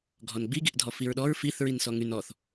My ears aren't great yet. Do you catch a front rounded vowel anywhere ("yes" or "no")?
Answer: yes